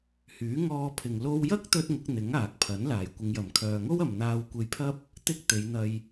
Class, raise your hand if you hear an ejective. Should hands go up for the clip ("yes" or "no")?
no